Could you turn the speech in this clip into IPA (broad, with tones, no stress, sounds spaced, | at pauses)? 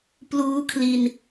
p l uː˦˥ kʰ l i˧ n